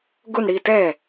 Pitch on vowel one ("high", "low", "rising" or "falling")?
falling